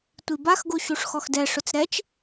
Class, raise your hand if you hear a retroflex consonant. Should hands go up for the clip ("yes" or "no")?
yes